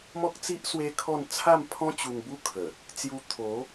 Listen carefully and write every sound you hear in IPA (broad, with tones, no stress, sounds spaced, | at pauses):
m ɔ˦ k̚ t͡s i˦ ʔ s w e˦ kʰ ɔ˥˧ n t͡sʰ a˥˧ m pʰ ɔ̃˦ t͡ɕ u˧ ŋ b u˦ kʰ ə˨˩ | t͡s j u˧ t̪ʰ o˨˦